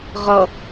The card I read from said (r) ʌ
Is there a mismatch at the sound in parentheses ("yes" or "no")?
yes